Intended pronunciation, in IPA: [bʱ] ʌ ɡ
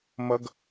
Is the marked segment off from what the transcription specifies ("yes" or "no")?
yes